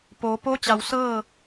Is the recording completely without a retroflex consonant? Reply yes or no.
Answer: yes